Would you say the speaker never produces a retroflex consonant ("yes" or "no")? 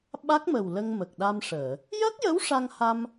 no